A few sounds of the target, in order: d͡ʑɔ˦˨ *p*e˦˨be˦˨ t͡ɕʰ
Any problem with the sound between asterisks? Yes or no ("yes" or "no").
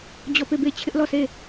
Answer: no